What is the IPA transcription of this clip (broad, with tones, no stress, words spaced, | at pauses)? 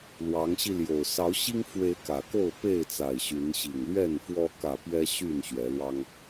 lwɑ˨˦ŋɕi˧ljo˨˩ʊ̯ sɑ˨˦ʊ̯ɕi˦ŋfwe˨˦ɪ̯ kä˨˩ko˥˨ʊ̯ pe˥˨ɪ̯t͡sa˨˩ɪ̯ ɕy˨˦n ɕi˨˩ŋlɥɛ˥˨nfwɔ˦ kä˥˨ pɥɛ˦ɕy˥˨nɕɥɛ˨˦lwɑ˦ŋ